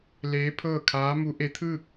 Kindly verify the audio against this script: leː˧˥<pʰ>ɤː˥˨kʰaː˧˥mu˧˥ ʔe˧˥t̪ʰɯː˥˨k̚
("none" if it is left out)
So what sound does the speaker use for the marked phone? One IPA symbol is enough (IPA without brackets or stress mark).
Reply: pʰ